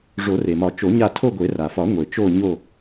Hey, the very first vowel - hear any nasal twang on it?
no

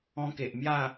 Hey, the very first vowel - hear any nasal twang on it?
yes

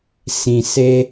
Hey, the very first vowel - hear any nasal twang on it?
yes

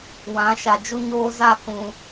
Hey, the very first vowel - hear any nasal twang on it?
yes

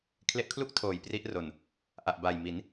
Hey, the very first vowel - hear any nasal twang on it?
no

